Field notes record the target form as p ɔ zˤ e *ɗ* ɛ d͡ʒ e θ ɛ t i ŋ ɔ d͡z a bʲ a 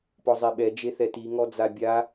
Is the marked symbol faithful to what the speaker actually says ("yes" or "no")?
no